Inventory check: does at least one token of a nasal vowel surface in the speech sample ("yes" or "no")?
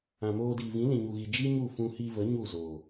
yes